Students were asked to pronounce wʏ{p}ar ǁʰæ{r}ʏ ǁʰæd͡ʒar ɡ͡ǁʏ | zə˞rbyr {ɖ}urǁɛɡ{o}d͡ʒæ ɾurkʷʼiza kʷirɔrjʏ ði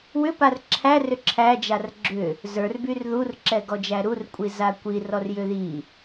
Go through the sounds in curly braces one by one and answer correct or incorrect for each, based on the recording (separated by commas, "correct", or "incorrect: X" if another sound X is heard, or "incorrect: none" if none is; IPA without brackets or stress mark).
correct, correct, incorrect: ð, incorrect: ɔ